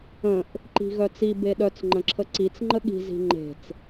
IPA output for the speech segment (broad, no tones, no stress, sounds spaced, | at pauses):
ə̃ ʔ | ǃ i̤ ɣ œ t͡s i b e ɗ œ t͡s ŋ͡ǃ ə̃ ǁʰ ə ǀ i t͡s ŋ͡ǃ ə ɠ i̤ z i̤ ŋ͡ǃ e̤ t͡s